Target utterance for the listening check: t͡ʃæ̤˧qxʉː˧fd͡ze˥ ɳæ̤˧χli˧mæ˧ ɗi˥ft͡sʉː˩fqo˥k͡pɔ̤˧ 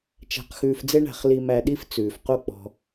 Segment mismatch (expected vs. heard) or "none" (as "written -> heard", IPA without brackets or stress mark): none